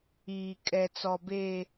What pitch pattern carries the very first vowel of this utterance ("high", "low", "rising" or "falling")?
low